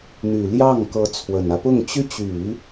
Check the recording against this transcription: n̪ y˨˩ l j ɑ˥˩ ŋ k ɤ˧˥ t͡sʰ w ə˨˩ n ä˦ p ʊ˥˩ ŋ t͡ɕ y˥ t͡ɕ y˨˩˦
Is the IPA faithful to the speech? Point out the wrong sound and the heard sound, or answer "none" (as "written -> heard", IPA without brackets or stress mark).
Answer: none